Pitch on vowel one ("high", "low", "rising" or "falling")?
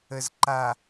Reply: low